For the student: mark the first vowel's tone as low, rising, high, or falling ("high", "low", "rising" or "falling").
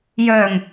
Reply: low